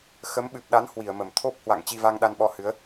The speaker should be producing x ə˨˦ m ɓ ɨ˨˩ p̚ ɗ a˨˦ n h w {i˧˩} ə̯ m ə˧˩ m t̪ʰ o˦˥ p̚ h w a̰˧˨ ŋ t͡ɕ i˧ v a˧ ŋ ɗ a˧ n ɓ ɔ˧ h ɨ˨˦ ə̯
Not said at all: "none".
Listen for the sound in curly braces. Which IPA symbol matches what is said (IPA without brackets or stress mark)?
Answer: i˧˩